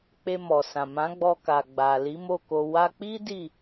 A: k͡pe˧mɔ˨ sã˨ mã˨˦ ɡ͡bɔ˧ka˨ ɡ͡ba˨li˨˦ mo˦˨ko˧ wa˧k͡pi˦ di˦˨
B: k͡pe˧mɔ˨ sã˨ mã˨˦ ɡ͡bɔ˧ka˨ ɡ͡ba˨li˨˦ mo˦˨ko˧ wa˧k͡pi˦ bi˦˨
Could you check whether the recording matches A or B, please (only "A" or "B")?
A